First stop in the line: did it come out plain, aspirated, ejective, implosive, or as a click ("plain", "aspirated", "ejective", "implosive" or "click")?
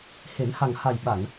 implosive